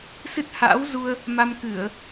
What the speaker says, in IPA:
s ɨ˦˥ t̚ h a̰ː˧˥ w z u˧ ə̯ | m a˧ m k ɨ˧˩˨ ə̯

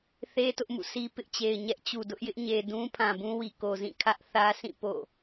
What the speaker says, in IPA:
θ e˦ t ʊ˦ ʔ m ṵ˦˨ sʰ i˦ p ɪ˦ ʔ t͡ɕ e˨ ɪ̯ ɲ ɛ˦ ʔ t͡ɕ u˨ d ʊ˦ ʔ j ɪ˦ ʔ ɲ e˨ d ũ˦ pʰ ã˨ b ũ˦ w i˨ k o˨ z ĩ˦˨ kʰ ä˦ ʔ θ ä˦ s ĩ˦˨ p o̰˦˨

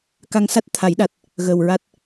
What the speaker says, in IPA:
k a˧ ŋ s a˦˥ t̚ t̪ʰ a˨˩˦ j ɗ a˨˩ t̚ | ɣ əː˨˩ w ɹ a˦˥ t̚

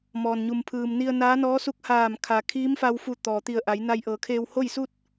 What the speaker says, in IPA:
m ɔː˩ n ɲ u˩ m pʰ ɯː˩ m n i˧ ə̯ n aː˧˥ n ɔː˧˥ s u˧˥ k̚ h aː˧˩ m kʰ a˩ kʰ iː˧˥ m f a˧ w f u˧˩ t̪ ɔː˩ t̪ i˧˩ ə̯ ʔ a˩˧ j n a˧ j ʔ ɤː˩˧ kʰ eː˧ w h o˥˨ j s u˥˨ t̚

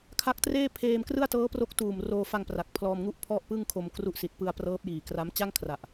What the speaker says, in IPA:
kʰ a˦˥ k̚ t r eː˥˩ pʰ eː˧ m k r ɯ˥˩ a̯ t ɤː˦˥ p r o˦˥ k̚ t uː˨˩ m r oː˧ f a˧ ŋ p r a˨˩ k̚ pʰ l ɔː˧ m ŋ u˥˩ ʔ pʰ ɔ˥˩ ʔ p ɯ˥˩ ŋ kʰ o˧ m k r u˦˥ ʔ s i˨˩ t̚ p ɯ˧ a̯ p r ɤː˦˥ p̚ j iː˨˩ k r a˦˥ m t͡ɕ a˥˩ ŋ kʰ r a˨˩ ʔ

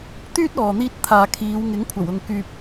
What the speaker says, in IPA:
t̪ yː˥ t̚ ɔː˨ n̪ iː˧ t̚ t̪ʰ aː˨ kʰ iː˨˧ w ŋ ɪ˨˥ ŋ kʷʰ ɐ˨˩ w ʊ˨ ŋ k yː˨ p̚

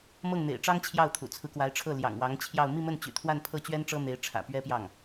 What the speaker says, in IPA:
m ɤ˥˩ ŋ n̪ ḛ˨˩ ɪ̯ ʈ͡ʂ ɑ˥ ŋ t͡ɕʰ j ɑ˥˩ ʊ̯ t̪ʰ ṵ˨˩ t͡sʰ ɹ̩˦ k w a˧˥ ɪ̯ ʈ͡ʂʰ ɤ˥˩ l j ɑ̰˨˩ ŋ w ɑ˧˥ ŋ t͡ɕʰ j ɑ˥˧ ʊ̯ m i˥˧ m ə˥˩ n t͡ɕ y̰˨˩ t̪ʰ w a˥˧ n pʰ ɤ˥˩ t͡ɕ ɥ ɛ˥ n ʈ͡ʂ ɤ˥ n̪ e˧˥ ɪ̯ ʈ͡ʂʰ ä̰˨˩ p ɥ ɛ˥ p j ɑ˥˩ ŋ

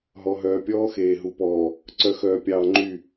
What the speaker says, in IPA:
ɦ ɔ˨ ɦ œː˨ pʲ ɔː˦ x eː˨ ɦ u˨ p ɔː˨ | ǀ œ˨ x œː˨ pʲ ɑː˨ ŋ͡ǃ y˦˨

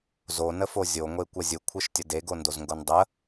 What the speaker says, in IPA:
z o n ə f o zʲ o ŋʷ e kʷ ə zʲ ɯ kʷʰ ɯ ʃ tʲ ə d e ɡ o n d o z ŋ ɡ o n dˤ ə

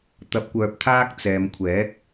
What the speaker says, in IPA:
t̪ ɐ˨ p̚ kʷ œː˨ p̚ t̪ʰ aː˧ k̚ t͡s ɛː˨ m kʷʰ ɛː˨˥ k̚

